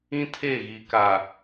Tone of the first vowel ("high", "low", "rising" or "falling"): high